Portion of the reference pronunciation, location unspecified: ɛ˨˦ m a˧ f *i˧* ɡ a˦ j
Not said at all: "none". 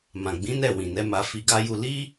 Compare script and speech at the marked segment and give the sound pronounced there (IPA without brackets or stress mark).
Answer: i˧